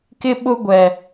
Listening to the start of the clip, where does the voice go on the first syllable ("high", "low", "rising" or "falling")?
high